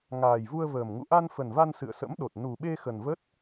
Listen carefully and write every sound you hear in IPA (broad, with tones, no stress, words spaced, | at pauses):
ŋaː˨˩jvu˧ə̯vəː˨˩m ŋṵ˧˨ʔa˧nfə˨˩nva˧n sɨ̰˧˨ə̯sə̰˧˥mɗo˨˩t̚ nu˨˩ɓe˧ xə˨˩nvə˦˥t̚